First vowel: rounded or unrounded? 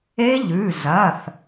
unrounded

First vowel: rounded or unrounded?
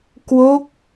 rounded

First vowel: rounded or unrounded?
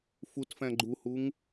rounded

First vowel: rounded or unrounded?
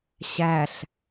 unrounded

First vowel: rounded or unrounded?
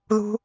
rounded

